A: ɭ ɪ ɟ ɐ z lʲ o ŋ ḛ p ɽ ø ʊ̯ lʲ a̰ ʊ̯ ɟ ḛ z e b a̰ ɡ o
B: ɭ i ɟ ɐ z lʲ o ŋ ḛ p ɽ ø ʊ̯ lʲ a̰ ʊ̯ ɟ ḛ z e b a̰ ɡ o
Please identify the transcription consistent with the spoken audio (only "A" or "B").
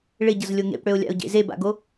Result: A